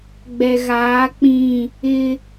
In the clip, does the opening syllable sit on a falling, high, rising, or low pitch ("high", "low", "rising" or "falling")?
low